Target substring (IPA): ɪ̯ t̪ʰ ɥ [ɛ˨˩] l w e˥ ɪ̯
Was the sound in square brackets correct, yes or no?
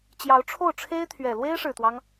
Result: yes